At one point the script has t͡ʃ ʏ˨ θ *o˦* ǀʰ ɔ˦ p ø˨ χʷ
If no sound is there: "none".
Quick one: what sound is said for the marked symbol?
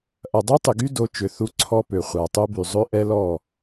u˦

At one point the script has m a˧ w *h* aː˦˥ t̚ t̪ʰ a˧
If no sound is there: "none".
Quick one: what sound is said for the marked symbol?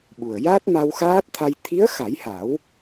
x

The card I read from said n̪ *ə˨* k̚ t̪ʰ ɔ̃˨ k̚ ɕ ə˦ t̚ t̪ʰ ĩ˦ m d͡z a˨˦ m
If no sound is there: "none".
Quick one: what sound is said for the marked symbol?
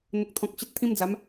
ə˨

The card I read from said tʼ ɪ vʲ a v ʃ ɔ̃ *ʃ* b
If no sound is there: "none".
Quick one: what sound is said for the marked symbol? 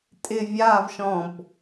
none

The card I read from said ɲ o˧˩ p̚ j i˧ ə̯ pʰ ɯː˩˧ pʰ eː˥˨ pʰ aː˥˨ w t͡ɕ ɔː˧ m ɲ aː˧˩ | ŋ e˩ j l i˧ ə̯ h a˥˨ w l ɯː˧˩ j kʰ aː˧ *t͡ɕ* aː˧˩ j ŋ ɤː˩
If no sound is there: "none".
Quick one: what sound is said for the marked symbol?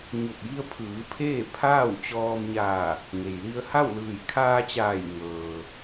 t͡ɕ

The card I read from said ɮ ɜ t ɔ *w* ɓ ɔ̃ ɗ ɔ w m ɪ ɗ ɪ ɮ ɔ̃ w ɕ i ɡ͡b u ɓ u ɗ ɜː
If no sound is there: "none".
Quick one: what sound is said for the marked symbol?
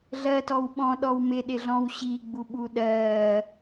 w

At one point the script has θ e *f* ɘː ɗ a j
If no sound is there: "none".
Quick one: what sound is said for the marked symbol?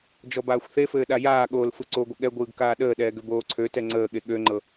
f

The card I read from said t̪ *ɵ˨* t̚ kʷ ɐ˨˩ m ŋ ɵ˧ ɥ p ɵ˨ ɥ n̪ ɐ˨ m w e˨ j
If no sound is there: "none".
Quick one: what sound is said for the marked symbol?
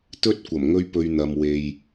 ɵ˥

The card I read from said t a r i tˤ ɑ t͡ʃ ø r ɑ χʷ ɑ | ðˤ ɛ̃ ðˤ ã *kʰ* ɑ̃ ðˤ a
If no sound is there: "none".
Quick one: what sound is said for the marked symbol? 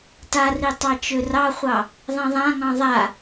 ŋ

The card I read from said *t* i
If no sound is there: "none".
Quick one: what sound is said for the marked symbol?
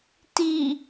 t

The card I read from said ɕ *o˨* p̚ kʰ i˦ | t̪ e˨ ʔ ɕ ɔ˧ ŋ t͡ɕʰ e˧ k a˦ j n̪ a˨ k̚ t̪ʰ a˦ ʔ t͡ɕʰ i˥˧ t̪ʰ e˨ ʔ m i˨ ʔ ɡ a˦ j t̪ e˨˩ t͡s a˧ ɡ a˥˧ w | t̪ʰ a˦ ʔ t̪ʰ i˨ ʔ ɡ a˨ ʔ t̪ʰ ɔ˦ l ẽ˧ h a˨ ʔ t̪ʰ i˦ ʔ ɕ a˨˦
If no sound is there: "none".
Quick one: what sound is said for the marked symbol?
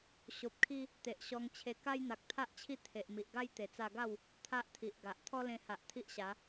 o˨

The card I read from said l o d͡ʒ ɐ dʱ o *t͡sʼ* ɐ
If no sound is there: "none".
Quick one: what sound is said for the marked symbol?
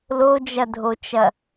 t͡ʃ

